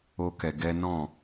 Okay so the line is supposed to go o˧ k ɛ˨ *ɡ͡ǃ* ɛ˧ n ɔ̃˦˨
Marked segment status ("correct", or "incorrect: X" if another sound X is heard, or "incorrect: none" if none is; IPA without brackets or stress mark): incorrect: ɡ